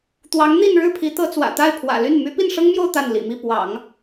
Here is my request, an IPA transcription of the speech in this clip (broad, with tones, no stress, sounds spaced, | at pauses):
t̪ w ɑ˧˥ ŋ n̪ i˥˧ n ɻ ɻ̩˥˩ pʰ i˧˥ t̪ ɤ˧˥ t͡s w ä̰˨˩ t̪ a˥˩ ɪ̯ pʰ w ä̰˨˩ l y˥˩ n m y˧˥ p i˥˩ n ʂ ɤ˥ ŋ m j o˥˧ ʊ̯ t̪ a˥˩ n l ḭ˨˩ m i˥˩ p w ɑ̰˨˩˦ ŋ